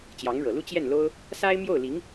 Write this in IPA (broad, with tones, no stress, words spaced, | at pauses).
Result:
t͡ɕjɑ˧˥ŋɻɤ˨˩lu˥ t͡ɕjɛ˥˩nlo˥ʊ̯ | sa˥ɪ̯ mjo˥˩ʊ̯li˧˥ŋ